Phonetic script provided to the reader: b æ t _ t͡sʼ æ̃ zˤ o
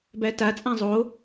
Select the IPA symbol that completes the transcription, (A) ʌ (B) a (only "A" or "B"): B